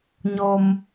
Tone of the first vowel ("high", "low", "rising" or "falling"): low